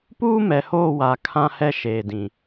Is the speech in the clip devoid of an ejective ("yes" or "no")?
yes